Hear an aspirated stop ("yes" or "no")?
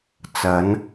no